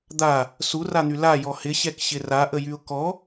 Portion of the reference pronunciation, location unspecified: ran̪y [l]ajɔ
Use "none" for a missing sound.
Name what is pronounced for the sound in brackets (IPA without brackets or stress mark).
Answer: l